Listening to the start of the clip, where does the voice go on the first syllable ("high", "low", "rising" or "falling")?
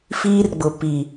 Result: high